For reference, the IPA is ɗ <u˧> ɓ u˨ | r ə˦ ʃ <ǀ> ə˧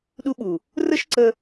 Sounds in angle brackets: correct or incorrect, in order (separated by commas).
correct, correct